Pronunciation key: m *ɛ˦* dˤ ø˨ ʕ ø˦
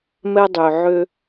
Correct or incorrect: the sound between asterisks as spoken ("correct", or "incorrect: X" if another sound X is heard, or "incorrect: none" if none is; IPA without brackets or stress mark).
correct